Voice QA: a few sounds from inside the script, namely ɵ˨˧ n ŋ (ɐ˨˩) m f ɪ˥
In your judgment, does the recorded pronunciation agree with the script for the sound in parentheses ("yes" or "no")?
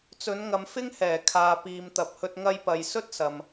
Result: no